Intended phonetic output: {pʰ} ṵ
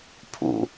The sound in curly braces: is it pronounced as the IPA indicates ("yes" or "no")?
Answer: yes